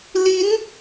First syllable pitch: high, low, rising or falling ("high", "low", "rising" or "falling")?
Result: rising